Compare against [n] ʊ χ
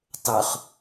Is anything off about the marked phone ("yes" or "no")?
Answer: yes